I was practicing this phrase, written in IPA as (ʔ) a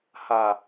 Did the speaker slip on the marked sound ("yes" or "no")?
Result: yes